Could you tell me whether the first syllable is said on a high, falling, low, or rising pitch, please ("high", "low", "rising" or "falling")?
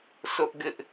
high